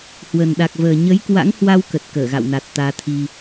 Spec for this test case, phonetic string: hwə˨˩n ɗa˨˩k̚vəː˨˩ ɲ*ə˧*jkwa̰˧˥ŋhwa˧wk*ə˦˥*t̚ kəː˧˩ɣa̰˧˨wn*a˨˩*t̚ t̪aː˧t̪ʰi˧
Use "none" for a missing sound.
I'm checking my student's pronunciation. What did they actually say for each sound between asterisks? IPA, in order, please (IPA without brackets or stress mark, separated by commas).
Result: ə˨˦, ə˨˩, a˨˩